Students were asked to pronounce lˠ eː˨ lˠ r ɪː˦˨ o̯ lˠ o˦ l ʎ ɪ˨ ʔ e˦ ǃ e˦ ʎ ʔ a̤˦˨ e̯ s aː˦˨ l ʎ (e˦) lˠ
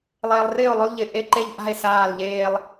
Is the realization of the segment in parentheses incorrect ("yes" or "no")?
yes